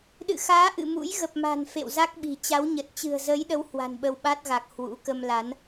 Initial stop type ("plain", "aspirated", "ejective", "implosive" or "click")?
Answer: implosive